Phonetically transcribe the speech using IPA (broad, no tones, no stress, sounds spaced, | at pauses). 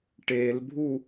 ʈ e l bʱ u